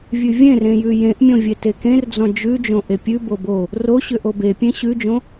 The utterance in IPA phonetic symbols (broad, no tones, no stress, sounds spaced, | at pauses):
vʲ ʉ vʲ ẽ r ẽ j ʉ j ẽ ʔ mʲ õ vʲ e t e k ẽ r d͡z ɔ̃ d͡ʒ ʉ d͡ʒ õ ʔ e pʲ ʉ b o b o | r o ɕ ʏ ʔ o b e pʲ ẽ ɕ ʉ d͡ʒ õ